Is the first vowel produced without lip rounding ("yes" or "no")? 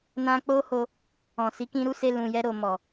yes